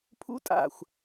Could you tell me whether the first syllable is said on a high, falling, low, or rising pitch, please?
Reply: rising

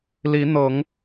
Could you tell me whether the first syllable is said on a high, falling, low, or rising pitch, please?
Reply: rising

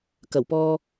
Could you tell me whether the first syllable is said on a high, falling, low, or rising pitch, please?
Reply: low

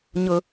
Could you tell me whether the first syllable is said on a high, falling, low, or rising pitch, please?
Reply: high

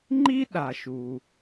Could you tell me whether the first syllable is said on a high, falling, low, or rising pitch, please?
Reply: high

